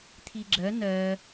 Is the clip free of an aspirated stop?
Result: no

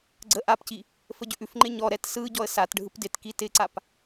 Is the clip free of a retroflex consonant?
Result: no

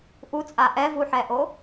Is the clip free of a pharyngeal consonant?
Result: no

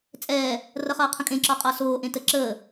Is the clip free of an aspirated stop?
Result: no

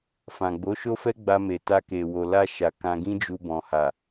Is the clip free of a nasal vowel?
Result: no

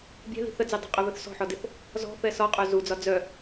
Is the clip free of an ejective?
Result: no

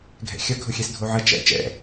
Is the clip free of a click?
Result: yes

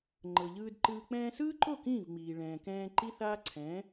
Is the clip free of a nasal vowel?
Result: no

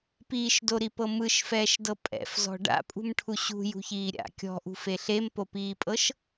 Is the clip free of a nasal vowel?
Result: yes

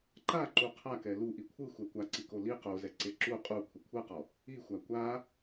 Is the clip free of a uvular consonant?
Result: no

